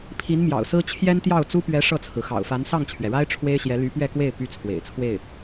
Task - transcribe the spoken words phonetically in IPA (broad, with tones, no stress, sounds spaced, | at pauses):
pʰ i˧˥ n m j ɑ̰˨˩ ʊ̯ s ɹ̩˥ t͡ɕʰ j ɛ˥ n t̪ j ɑ˥˩ ʊ̯ t͡s u˥ p ɥ ɛ˧˥ ʂ ɤ˥˩ t͡sʰ ɹ̩˩ x ɑ̰˨˩ ʊ̯ f a˧˥ n s ɑ˥˩ ŋ t͡ɕʰ ɥ ɛ˩ ɻ a˥ ɪ̯ ʈ͡ʂʰ w e˥ ɪ̯ ɕ j ɛ˧˥ l y˧˥ p ɥ ɛ˥˧ k w e˥˩ ɪ̯ p y˥ t͡sʰ w ḛ˨˩ ɪ̯ t͡sʰ w e˥˩ ɪ̯